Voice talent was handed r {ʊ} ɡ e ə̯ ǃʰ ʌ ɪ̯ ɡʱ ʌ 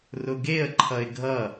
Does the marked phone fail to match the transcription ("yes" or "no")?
no